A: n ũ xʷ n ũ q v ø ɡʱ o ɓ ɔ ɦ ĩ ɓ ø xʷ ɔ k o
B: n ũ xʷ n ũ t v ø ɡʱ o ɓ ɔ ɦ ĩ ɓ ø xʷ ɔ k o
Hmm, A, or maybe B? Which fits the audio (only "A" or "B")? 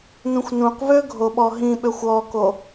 A